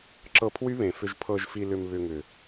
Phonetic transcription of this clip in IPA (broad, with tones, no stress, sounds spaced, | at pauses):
ǁ ɤ˧ pʰ w y˦ β ẽ˨ f ʏ˧ ʒ pʰ ɤ˧ ʒ f i˧ l ʏ˧ m β ʏ˧ ŋ ʏ˨